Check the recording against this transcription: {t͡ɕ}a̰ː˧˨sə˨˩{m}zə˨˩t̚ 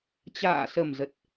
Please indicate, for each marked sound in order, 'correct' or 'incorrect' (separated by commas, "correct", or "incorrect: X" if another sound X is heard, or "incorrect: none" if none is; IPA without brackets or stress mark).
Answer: correct, correct